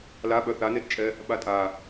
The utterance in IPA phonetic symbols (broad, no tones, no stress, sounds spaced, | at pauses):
l a ɓ œ θ a n e t t͡ʃʼ ɛ | ɓ a tʼ a